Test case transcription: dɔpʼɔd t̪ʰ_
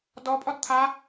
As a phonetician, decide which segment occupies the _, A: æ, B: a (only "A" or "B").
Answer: B